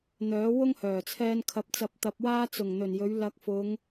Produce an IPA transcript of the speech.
n̪ œː˨˥ w ʊ˥ ŋ h œː˨˩ t͡sʰ ɛː˧ n kʰ ɐ˨˥ p̚ t͡s ɐ˨˥ p̚ t̪ ɐ˨˥ p̚ w aː˥ t͡s ʊ˨˩ ŋ n̪ ɵ˨˩ n j ɵ˨˧ ɥ l ɐ˨˥ k̚ f ʊ˨˧ ŋ

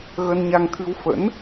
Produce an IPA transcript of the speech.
ɣ ə˧ n ɲ a˧ ŋ t̪ʰ ɨ˧ w f ə̰˧˥ n

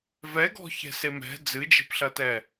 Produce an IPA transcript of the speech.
v ɛ ɡ ɔ̤ ç ɛ̤ s e m ɛ̤ d͡z ɨ d͡ʒ e̤ p ɬ ɐ t ɛ

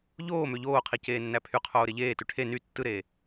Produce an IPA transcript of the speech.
ʎ oː m ø ʎ oː qʰ i c eː nː æ pʰ y qʰ oː ɾ e ʎ eː t y ʈʰ e n y tː ɯ ɾ eː

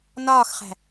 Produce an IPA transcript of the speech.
n ɒː x χ æ̤

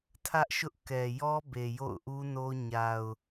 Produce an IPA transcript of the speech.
tʰ ä˦ ʔ ʃ ʊ˦ ʔ k ɛ˨ j ɔ˦ b e˨ j o̰˦˨ ʊ̯ ʔ u˦ n o˦ ɲ a˨ ʊ̯

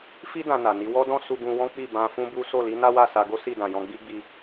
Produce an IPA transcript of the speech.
f i˦ d ã˧ n a˨ n i˨˦ w ɔ˦ d ɔ̃˦ s u˧ ɡ ũ˧ w ɔ̃˦ k͡p i˦˨ b ã˧ f ũ˦ b u˦ s o˦˨ l i˨˦ n a˦ w a˦˨ s a˧ ɡ o˦ s i˦˨ d ã˨ j ɔ̃˧ ɡ͡b i˦ ɡ͡b i˧

